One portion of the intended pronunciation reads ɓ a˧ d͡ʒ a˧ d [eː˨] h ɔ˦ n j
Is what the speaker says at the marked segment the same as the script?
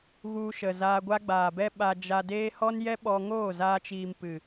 no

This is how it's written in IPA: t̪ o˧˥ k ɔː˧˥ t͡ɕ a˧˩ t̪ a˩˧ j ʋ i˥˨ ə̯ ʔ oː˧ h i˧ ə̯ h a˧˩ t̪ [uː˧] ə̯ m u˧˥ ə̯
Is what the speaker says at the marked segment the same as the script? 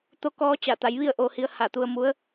no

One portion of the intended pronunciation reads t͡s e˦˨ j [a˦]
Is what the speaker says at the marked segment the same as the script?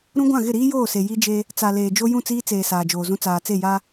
yes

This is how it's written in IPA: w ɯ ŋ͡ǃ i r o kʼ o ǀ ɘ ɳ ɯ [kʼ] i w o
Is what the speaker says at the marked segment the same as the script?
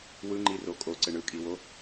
yes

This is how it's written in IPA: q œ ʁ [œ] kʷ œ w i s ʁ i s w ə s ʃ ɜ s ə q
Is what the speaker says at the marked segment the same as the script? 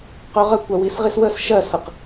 no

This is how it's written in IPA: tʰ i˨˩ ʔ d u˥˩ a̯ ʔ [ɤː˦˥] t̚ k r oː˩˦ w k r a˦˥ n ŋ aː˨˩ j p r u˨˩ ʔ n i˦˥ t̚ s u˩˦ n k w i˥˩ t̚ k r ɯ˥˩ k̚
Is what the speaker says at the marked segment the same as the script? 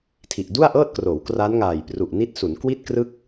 no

